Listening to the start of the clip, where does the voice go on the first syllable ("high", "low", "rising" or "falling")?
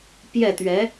falling